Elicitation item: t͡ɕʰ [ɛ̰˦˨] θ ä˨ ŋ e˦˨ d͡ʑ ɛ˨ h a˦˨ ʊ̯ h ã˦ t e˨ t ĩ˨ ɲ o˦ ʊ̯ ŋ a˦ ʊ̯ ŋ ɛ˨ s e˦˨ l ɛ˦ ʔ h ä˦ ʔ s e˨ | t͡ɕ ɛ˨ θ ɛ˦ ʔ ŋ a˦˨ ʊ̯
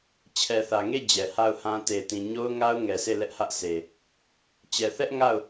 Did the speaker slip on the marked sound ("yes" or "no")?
yes